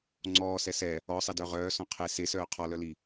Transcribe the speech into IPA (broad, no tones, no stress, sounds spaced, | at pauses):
ŋ͡ǀ ɔː s ɛ s ɛ | ɔ sˤ ɛ d œ ʁ œː s ɔ̃ qʰ e s e s œː qʰ ɔ l œ l i